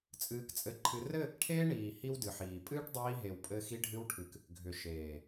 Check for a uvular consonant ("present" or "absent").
absent